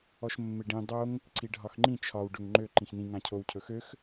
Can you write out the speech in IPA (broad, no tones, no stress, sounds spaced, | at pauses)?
ɔ ʃ mː ɪ ɖ ĩ dˤ o ŋ | ǀ i ɖʱ ɒ x ŋ͡ǃ ĩ t͡ʃʰ ɒ w ɖ ɵ ŋ ŋ͡ǃ ø ǃ ĩ x n ĩ ŋ ã cʰ o w cʰ ɵ x ø x